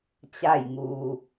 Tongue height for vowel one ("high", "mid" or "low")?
low